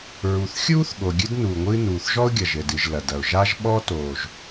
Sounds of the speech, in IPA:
ɹ u˩ θ xʲ uː˥ θ ɠ o˩ ɡʲ ɨ˥ d n uː˩ ŋʷ ɨː˥ n uː˩ θ ʒ ɔ˥ ʊ̯ ɡʲ ɐ˩ ʒ ɘ˩ d ɨ˩ ʒ l ɐ˩ d ɐ˩ ʊ̯ ʒ a˥ ʒ ɓ ɔ˥ t oː˩ ʒ

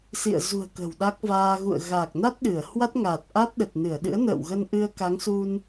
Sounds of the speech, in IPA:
s ḭ˧˨ ə̯ z ṳ˨˩ ə̯ k ə̤˨˩ w ɗ a˦˥ k̚ v aː˧ ɣ ṵ˧˨ ə̯ ɣ a˨˩ k̚ n a˦˥ t̚ ɗ ɨ˧˩ ə̯ h w a˦˥ t̚ ŋ aː˨˩ t̚ ʔ a˦˥ t̚ ɗ ə˨˩ t̚ n ɨ˧˩ ə̯ ɗ ɨ̰˧˥ ə̯ n ə̰ː˧˨ w ɣ ə˧ n ʔ ɨ˧ ə̯ k a˨˦ ŋ s u˧ n

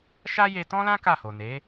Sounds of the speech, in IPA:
ʃ a˦ j e˧ t ɔ̃˦ l ã˦ k a˦˨ h o˨ n e˨˦

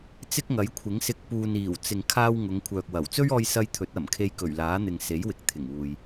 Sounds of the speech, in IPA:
t͡s ɪ˥ k̚ ŋ ɐ˨˥ j kʷʰ ɪ˨˥ ŋ s ɪ˧ k̚ p uː˨ n iː˨˩ w t͡s ɪ˨ ŋ kʰ aː˧ w ŋ ʊ˨˧ ŋ kʷʰ œː˨ k̚ w ɐ˨˩ w t͡s ɵ˥ ɥ ɔː˧ j s ɐ˧ j t̪ʰ ɵ˨˥ t̚ ɐ˨˩ m kʰ e˧ j k ɵ˨˩ ɥ l aː˨˥ n̪ ɪ˨ ŋ s e˨˥ j w ɪ˨˥ k̚ t̪ʰ ɪ˨˩ ŋ uː˨ j

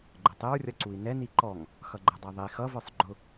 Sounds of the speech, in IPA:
ɡ͡ǃ ə tˤ ɪ ɹ rʲ ʌ ǀ u i̯ n ɛ n i ǃ ɔ ŋ | x ʌ ɡ͡ǃ ɛ dˤ æ ðˤ i x ʌ v ə˞ sˤ ɡ͡ǃ ʊ

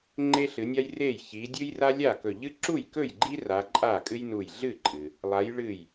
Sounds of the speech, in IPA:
ŋ͡ǃ e˦ ɬ ɨ˨˦ nʲ a˦ j r e˥˩ j ç i˨˦ dʲ ɨ˦ j r a˦ lʲ a˥˩ k ɵ˧˩ ʎ ɨ˦ ǁ u˥˩ j k ɵ˥˩ j ɡ͡ǃ i˦ r a˨˦ ǃʼ a˥˩ kʼ ɨ˦ j n u˧˩ j ɮ ɨ˥˩ ǃʼ ɨ˩ | lˠ a˨˦ j ɭ ɨ˧˩ j

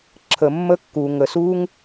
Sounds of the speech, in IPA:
ǁʰ ə˨ mː ə˧ kː uː˨ ŋ ə˨ s uː˦ ŋ

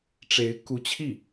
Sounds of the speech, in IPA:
ʈ͡ʂ e˧˥ ɪ̯ k u˧˥ t͡ɕʰ i˥˩

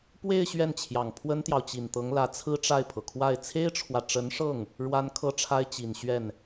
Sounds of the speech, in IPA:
p w e˥˧ ɪ̯ ɕ ɥ ɛ˥˩ n t͡ɕʰ j ɑ˨˩ ŋ pʰ w ə˥ n t̪ j ɑ˨ ʊ̯ t͡ɕ i˨˩ n t̪ ɤ˧˥ ŋ l ä˧˥ t͡sʰ ɹ̩˥ ʈ͡ʂ a˥˩ ɪ̯ pʰ ɤ˩ kʰ w a˥˩ ɪ̯ t͡sʰ e˥ ɪ̯ ʈ͡ʂʰ w ä˨ ʈ͡ʂ ə˧˥ n ʂ ɤ˥˩ ŋ | ɻ w a˥ n kʰ ɤ˥ ʈ͡ʂʰ a˥ ɪ̯ t͡ɕ i˨˩ n ɕ ɥ ɛ˥˩ n

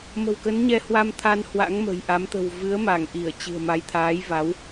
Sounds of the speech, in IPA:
m ə̤˨˩ w k ə˨˦ n ɲ ɛ˧ h w a˧ m t̪ʰ a˧ n h w a̰˧˥ ŋ m ə̤˨˩ j ʔ a˨˦ m t̪ ə̤˨˩ w v ɨ˨˦ ə̯ m a˧˩ ŋ ʔ i˧˩ ə̯ t͡ɕ ɨ̤˨˩ ə̯ m a˨˦ j t̪ʰ aː˨˦ j v a˨˦ w

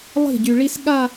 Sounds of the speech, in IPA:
lˠ i̤˥˩ ɟ y˨ ɭ i˥ s ɠ a˥˧

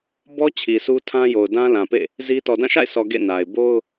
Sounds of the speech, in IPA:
b ɔ˦ t͡ɕʰ i˨ s u˦ tʰ ã˦ j o˨ ʊ̯ d ã˦ l ã˨ p ḛ˦˨ | z i˦ t ɔ˨ d ã˦˨ ʃ a̰˦˨ ɪ̯ s ɔ˨ ɡ ḛ˦˨ n a˨ ɪ̯ b o˦ ʊ̯

